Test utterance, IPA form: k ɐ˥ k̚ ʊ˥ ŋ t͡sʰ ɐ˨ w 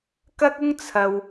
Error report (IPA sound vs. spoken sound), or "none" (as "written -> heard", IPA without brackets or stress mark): none